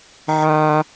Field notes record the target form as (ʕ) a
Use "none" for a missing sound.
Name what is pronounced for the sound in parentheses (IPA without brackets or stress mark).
ʕ